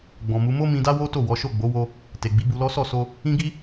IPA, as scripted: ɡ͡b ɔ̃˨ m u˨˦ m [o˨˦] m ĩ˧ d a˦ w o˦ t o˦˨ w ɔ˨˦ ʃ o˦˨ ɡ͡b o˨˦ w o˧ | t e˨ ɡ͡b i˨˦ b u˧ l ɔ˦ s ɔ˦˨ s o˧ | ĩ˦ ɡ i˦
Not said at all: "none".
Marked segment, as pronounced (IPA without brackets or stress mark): o˦